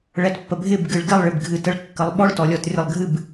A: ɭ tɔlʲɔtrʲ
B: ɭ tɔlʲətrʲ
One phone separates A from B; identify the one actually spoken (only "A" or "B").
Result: A